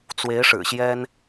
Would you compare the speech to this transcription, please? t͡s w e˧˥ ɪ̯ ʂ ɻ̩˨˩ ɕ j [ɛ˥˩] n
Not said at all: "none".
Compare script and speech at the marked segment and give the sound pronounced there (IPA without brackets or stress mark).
ɛ˥